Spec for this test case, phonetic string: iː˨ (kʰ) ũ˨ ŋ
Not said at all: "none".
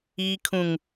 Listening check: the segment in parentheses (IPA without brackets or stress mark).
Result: kʰ